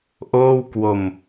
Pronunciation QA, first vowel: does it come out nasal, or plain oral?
oral